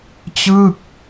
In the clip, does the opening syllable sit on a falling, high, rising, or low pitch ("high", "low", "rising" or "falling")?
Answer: falling